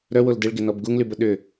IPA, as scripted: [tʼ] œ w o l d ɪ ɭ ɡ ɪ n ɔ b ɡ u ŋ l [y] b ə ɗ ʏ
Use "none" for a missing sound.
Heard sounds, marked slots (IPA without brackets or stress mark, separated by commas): ɾ, y